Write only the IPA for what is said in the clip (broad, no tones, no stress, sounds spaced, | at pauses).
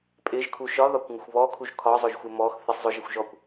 pʼ ɪ ʒ kʰ u ʃ ɒ ð ɒ kʷ ŋ ʊ xʷ β ɔ kʰ u ʒ kʰ ɒ zˤ ʊ ʒ xʷ ɪ m ɔ x θ ɪ sˤ zˤ ʊ ʒ ɪ xʷ ʒ ɔ kʷ